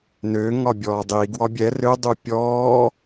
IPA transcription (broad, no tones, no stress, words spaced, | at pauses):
nø ŋɒbʲɔːdˤiɡ wɒbʲɛ rø dˤupʲɔː